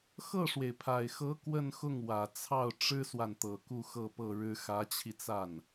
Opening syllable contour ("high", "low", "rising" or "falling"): falling